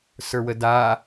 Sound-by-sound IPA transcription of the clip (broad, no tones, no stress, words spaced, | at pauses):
sə˞wəda